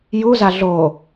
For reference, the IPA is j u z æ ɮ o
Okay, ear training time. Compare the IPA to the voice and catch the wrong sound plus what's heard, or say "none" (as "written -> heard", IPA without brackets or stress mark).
æ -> a